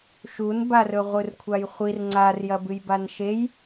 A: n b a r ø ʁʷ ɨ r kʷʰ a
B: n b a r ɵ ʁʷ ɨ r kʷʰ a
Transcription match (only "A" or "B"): B